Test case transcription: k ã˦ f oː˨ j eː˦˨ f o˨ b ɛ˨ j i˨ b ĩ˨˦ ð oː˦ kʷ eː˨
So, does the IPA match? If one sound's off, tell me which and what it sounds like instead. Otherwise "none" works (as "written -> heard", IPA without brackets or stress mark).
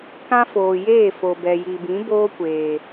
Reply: ð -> b